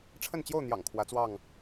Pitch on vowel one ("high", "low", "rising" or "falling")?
falling